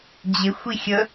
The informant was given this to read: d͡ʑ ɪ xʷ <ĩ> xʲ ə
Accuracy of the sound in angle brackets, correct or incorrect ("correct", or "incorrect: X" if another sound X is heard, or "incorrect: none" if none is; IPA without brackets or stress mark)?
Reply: incorrect: i